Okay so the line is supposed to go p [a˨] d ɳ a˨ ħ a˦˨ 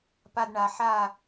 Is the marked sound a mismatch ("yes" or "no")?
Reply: no